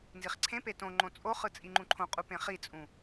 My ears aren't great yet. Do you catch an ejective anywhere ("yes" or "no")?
yes